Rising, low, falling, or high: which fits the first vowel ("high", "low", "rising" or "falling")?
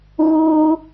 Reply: high